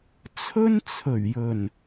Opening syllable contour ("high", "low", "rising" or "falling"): high